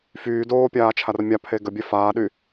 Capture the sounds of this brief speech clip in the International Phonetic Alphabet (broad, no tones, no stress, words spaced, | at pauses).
fyː doːpʲaːt͡ʃʰar mʲapʰe ɡəbʲɛ faːɗy